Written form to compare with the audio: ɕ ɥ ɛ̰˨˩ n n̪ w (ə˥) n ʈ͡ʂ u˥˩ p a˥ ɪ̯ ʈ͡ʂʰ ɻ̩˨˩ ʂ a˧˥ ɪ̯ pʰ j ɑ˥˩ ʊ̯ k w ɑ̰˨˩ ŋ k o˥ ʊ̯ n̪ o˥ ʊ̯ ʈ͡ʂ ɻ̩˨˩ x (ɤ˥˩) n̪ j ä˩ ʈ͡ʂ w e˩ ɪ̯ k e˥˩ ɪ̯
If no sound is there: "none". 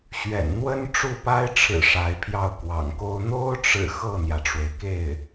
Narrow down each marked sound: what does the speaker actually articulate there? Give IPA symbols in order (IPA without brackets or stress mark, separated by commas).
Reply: ə˥, ɤ˥˩